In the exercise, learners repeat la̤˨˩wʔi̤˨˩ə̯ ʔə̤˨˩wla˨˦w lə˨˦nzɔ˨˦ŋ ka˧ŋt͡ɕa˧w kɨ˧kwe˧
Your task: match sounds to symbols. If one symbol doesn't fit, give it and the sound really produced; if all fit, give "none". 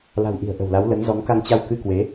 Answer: e˧ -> e˨˦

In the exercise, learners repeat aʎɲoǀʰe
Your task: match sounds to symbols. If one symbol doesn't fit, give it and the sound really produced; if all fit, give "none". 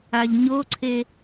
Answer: none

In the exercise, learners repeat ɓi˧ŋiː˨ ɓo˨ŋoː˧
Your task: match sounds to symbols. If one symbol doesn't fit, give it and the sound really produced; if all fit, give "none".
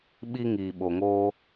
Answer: none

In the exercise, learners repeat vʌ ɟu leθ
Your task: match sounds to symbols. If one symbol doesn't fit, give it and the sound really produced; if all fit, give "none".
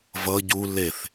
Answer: none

